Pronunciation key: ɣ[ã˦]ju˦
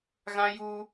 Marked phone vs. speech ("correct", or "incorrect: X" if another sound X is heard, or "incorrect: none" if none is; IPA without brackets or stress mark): correct